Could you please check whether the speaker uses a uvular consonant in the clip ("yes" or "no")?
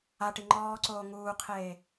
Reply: yes